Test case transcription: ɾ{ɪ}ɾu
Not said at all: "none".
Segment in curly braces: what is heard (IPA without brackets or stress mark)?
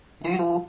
y